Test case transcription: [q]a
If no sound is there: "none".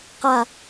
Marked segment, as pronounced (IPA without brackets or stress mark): q